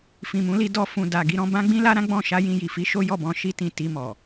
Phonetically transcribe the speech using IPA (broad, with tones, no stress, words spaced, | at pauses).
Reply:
fĩ˨mũ˨˦li˧ dɔ˧fũ˨da˨ ɡi˨˦ɾɔ̃˧ bã˦ɡ͡bĩ˦ la˦ ɾã˦ɡ͡bɔ̃˦˨ ʃa˧ jĩ˧ji˨fi˧ ʃo˦jɔ˦˨bɔ̃˧ ʃi˧tĩ˨ ti˧mɔ˨